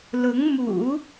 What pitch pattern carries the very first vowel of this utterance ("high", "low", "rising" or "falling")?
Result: rising